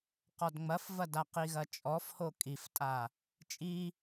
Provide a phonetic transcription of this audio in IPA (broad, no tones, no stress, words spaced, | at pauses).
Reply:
qɔdŋ͡mɐfvɐda qiɣɐt͡ʃʼɔfho kʼiftʼa | t͡ʃʼi